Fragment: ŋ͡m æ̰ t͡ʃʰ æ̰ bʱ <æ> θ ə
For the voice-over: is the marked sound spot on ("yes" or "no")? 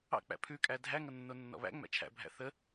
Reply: no